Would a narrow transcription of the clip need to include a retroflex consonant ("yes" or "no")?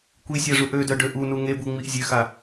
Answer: yes